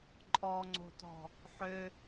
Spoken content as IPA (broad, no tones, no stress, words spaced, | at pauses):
ǃʼɔŋ͡ǀo̤tɔ̤ | ħø